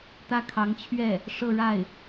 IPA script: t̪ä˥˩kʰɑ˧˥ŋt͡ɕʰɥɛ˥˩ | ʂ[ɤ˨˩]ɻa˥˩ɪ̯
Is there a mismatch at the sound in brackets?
yes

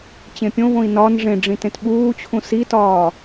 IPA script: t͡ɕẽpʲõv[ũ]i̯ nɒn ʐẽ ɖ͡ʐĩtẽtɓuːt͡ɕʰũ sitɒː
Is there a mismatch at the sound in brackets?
yes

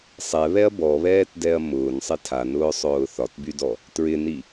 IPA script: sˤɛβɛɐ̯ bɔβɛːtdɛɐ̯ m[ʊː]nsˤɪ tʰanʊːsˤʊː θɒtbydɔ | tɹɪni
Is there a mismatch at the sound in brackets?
no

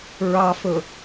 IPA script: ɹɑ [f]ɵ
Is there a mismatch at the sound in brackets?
no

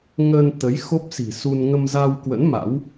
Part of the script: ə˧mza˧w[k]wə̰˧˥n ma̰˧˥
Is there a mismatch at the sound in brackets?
no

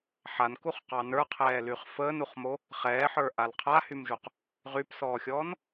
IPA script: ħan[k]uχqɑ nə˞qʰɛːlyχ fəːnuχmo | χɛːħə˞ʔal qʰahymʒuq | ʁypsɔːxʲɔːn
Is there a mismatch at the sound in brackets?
no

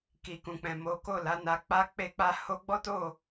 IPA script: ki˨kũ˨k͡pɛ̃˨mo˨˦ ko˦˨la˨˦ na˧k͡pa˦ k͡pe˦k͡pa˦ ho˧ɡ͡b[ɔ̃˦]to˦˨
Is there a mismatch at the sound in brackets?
yes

